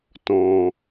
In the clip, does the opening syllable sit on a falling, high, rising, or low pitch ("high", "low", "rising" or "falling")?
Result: low